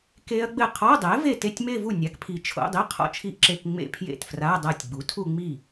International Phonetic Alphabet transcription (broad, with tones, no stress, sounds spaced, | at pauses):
k e˦˥ ɐ̯ ɡ͡b ɘ˥˩ qʰ ɔ˧˥˧ dˤ ɛ˩˥ v e˥˩ t e˥˧ tʲ m e˥˧ v u˥˩ nʲ a˩˥ k pʰ i˨ t͡ʃʰ o̰˧˥˧ dˤ i˧˥˧ qʰ ɔ̰˥˩ t͡ʃʰ i˦˥ ʔ ǁ e˧˥˧ k ŋ͡m ḛ˥˧ pʰ j ḛ˥˩ t f r a˧˥˧ dˤ a˥˩ tʲ ɡ͡b u˩˥ tʰ u˥˧ ŋ͡m i˥˩